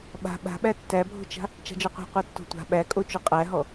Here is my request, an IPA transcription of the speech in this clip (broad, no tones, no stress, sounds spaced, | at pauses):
ɓ a̤ ɓ a̤ ɓ æ tː æ bʱ o̤ t͡ʃ a̤ | t͡ʃ a̤ d͡ʒ ɔ qʷ æ̤ qʷ æ tː o̤ tʷ a̤ ɓ æ kʼ o t͡ʃ o qʼ æ ɦ ɔ